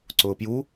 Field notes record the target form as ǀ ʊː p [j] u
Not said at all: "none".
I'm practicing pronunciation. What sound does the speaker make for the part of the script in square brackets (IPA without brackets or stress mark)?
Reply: j